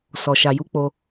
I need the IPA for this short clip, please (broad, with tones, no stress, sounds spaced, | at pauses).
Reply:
s ɔ˨ ʃ a˨ j u˨˦ k͡p o˧